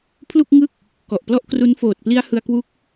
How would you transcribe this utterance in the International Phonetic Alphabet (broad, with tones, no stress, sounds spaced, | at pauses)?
pʰ l u˥˩ k̚ ŋ ɯ˥˩ k̚ | k ɔ˨˩ ʔ p l ɔ˥˩ ʔ k r u˦˥ n f oː˨˩ t̚ p l i˦˥ a̯ h ɯ˧ a̯ k w u˦˥ k̚